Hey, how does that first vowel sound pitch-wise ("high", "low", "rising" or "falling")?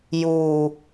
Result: low